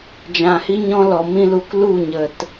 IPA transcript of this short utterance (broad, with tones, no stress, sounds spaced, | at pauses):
d͡ʒ ã˨ h i˦ ɲ ɔ̃˦ l ɔ˨ m ĩ˦ l u˧ k l u˦˨ ɲ ə˨ t